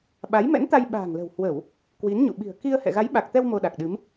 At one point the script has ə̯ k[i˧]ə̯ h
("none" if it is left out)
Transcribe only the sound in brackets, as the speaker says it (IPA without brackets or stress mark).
i˧